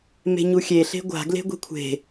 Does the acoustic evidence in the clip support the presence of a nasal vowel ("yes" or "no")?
no